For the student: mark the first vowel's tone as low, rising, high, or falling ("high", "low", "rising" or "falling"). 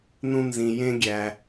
low